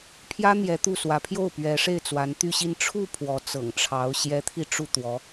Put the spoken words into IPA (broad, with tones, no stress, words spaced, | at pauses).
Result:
pʰjä˥n̪jɛ˧˥ t̪u˥˩ swä˧˥pʰjo˥˩ʊ̯ pɥɛ˧˥ʂe˥˩ɪ̯ t͡swa˧˥nt̪y˥˧ɕi˥˧n ʈ͡ʂʰu˥˩ pʰwɔ˧˥t͡sɤ̰˨˩ŋʈ͡ʂʰɑ˧˥ʊ̯ ɕjɛ˧˥t̪ʰi˧ ʈ͡ʂu˥˩t̪wɔ˧˥